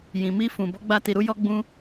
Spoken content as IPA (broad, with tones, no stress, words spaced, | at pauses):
jĩ˨mi˧fũ˨ bɔ˨˦ɡ͡ba˧ti˨ɾu˨˦ jɔ˧ɡ͡bũ˧